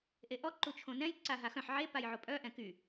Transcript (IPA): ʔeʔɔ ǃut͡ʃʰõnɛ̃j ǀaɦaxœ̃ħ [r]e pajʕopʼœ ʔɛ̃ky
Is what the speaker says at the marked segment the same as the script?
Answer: no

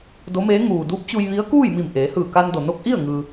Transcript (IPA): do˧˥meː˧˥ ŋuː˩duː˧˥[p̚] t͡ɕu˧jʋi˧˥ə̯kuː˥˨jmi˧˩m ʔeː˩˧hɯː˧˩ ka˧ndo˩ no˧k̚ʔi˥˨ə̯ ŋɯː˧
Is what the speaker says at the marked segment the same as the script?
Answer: yes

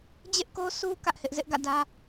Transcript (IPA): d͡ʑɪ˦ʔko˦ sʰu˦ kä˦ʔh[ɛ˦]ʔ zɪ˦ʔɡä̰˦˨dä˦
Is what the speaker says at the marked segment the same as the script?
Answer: no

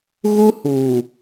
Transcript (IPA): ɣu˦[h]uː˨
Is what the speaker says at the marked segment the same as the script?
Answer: yes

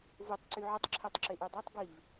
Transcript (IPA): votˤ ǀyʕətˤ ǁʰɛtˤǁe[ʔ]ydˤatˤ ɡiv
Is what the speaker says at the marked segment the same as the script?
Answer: yes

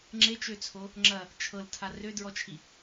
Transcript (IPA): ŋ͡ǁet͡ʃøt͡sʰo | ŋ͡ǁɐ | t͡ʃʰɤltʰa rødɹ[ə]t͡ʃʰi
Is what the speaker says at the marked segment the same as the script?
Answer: no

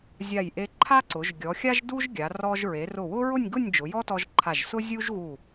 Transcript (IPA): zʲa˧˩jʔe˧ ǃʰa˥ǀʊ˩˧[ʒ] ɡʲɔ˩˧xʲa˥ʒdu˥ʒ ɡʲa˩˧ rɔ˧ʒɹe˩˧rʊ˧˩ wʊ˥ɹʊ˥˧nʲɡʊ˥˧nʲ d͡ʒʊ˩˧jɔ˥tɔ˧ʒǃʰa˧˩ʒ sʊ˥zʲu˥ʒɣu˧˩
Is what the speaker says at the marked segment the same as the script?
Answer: yes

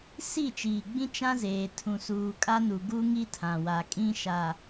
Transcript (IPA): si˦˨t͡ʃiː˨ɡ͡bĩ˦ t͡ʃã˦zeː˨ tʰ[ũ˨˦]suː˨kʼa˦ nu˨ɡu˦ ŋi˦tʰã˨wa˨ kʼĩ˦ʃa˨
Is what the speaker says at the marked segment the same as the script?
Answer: no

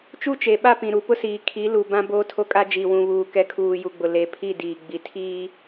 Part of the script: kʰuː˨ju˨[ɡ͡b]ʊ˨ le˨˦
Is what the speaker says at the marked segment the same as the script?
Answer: yes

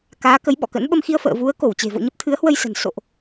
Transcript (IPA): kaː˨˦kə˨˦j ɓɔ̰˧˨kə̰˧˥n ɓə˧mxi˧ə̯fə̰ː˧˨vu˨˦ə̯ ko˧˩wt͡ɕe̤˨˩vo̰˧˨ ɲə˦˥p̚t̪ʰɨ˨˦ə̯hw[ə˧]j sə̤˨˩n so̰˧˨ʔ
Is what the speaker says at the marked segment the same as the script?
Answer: yes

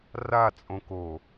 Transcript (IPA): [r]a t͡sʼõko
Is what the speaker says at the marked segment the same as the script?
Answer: yes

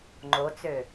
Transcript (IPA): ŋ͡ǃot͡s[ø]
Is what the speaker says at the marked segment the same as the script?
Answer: yes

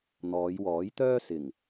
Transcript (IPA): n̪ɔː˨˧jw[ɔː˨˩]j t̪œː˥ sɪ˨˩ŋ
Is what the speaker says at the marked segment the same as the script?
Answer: no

